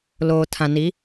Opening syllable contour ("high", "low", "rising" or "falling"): low